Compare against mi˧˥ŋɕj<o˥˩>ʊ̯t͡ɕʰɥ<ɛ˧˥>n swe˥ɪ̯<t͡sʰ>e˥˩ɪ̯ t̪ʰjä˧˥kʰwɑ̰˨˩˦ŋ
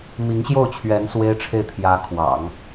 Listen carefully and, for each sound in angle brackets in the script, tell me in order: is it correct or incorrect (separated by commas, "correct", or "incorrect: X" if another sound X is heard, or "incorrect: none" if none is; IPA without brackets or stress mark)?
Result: correct, correct, incorrect: ʈ͡ʂʰ